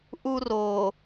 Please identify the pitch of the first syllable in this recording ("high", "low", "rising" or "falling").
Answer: high